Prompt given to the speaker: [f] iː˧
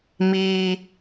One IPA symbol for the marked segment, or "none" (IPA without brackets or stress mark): m